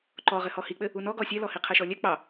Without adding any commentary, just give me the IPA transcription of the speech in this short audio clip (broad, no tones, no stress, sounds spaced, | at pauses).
ǃ ɔ ʁ ɘ h ɔ h i k͡p ɘ | u n ɔ ɡ ɔ sʲ ɛ l ɔ h i qʰ ɛ ʃ ɔ lʲ ɛ k͡p ɑ